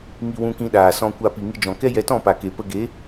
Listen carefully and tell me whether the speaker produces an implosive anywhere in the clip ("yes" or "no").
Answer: yes